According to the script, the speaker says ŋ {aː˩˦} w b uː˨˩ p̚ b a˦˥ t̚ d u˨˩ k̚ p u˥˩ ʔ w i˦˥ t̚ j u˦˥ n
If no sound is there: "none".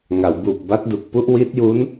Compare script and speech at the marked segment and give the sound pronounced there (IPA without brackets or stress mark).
a˩˦